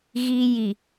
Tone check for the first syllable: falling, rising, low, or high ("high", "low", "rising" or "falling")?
high